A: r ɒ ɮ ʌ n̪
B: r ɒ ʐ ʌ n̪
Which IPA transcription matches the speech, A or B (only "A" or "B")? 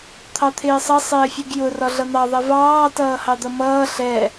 A